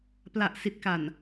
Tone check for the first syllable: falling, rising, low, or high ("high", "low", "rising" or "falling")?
low